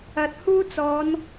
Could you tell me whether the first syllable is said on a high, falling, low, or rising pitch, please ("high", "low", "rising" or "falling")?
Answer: low